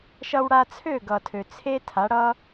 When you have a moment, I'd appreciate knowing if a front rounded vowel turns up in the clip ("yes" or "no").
yes